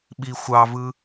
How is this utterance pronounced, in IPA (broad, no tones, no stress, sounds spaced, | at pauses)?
ɓ i xʷ ɑ v ɯ